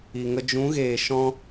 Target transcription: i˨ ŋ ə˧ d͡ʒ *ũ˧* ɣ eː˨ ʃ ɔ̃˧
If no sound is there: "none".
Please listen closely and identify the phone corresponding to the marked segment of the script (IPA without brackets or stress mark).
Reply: ũ˨˦